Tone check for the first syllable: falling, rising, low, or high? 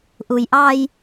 low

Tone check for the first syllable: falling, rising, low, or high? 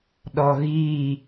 low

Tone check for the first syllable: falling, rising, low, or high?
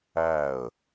falling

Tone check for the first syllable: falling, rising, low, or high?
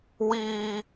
high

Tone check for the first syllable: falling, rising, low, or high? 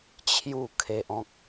falling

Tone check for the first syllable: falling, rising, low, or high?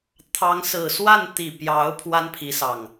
rising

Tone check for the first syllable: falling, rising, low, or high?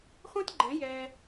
high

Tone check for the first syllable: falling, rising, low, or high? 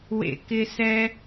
low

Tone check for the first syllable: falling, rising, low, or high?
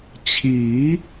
rising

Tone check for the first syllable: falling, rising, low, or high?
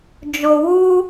low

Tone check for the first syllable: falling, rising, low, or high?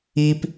high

